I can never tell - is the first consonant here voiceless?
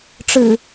yes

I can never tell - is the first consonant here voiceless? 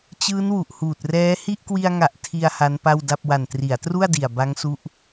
yes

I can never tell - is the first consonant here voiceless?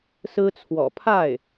yes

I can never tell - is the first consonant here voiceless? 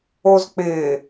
no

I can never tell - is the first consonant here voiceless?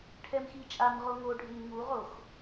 yes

